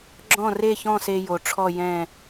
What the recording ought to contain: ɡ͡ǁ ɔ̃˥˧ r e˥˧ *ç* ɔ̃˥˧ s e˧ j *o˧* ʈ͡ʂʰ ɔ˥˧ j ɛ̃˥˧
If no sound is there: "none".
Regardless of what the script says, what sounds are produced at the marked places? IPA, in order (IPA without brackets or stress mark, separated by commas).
ç, o˩˧